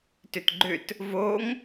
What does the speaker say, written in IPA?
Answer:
tʏtɡ͡ǃʏt | voŋ

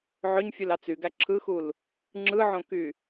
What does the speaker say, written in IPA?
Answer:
ʕøɲfʲulɑ t͡syɡæ ǁʰɯxul | ŋ͡ǁɯʕõky

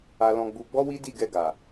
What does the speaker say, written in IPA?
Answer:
a˧lɔ̃˧ɡ͡bu˧ ɡ͡bɔ˦wi˦di˦˨ ɡɛ˧ɡa˨

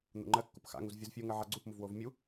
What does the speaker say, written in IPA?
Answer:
n̪ṵŋ͡ǃɜ kːupxa̰ŋuz vʲuzfʲuŋɜ ʕaɡ͡ǀupmuvwov mʲu

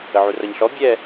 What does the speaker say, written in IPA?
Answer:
əʕurʌɲɬɔ bʲɛ

